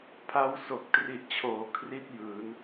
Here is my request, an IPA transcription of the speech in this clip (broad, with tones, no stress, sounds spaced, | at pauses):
pʰ a˦˥ w s o˨˩ k̚ t r i˨˩ ʔ t͡ɕʰ oː˩˦ kʰ r i˥˩ t̚ j ɯː˩˦ n